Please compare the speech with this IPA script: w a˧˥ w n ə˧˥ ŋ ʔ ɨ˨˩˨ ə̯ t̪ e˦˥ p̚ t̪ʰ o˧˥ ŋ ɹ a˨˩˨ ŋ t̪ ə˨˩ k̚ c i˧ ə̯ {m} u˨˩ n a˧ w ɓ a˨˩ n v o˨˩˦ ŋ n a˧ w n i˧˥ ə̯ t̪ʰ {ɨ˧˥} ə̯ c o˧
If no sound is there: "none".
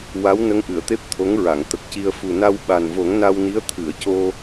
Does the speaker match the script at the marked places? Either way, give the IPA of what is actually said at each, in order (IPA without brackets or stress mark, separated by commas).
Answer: f, ɨ˨˩˨